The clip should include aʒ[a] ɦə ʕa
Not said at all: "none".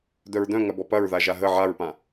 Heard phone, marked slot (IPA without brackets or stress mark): a